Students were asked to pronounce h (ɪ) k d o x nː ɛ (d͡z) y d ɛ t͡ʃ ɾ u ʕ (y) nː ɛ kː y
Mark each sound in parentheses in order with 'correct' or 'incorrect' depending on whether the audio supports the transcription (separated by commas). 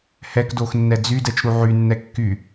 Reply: incorrect, correct, correct